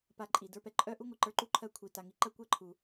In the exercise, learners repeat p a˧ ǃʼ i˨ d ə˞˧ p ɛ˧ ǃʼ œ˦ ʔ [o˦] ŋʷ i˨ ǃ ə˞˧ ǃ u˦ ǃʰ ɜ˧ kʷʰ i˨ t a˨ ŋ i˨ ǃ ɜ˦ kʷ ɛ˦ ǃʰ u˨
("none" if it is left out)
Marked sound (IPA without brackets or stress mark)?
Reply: u˦